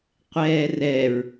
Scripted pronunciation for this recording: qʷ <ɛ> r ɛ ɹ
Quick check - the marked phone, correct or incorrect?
incorrect: ɛː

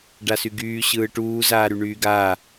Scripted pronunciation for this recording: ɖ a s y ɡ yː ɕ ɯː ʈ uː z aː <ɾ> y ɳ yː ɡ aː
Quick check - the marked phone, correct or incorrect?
correct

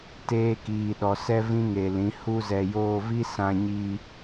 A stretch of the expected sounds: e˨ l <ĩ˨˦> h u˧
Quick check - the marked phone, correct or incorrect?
correct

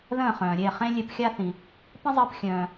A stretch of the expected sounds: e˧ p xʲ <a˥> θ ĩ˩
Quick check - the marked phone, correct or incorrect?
correct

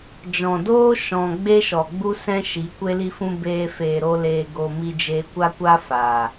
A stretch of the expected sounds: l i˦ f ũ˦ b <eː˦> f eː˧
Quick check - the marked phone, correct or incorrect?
correct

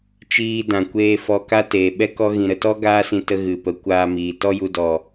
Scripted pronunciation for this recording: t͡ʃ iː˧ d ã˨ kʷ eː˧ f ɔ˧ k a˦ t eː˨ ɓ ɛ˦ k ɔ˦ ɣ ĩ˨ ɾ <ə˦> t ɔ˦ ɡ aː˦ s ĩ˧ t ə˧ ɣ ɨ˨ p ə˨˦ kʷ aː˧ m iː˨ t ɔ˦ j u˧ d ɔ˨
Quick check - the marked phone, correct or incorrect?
incorrect: ə˨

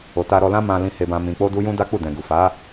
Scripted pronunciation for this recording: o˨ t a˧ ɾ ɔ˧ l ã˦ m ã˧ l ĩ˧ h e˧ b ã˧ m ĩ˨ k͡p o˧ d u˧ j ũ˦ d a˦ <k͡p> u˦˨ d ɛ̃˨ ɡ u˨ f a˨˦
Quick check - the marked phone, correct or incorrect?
correct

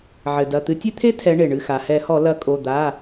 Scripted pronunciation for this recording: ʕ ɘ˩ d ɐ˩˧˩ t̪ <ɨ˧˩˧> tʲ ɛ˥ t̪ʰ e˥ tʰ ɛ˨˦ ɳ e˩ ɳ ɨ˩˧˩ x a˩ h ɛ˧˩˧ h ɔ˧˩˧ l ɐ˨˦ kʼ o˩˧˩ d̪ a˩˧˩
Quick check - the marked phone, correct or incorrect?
incorrect: ɨ˨˦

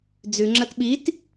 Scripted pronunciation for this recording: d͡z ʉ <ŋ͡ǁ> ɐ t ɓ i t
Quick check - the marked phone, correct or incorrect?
correct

